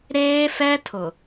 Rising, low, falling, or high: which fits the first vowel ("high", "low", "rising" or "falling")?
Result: high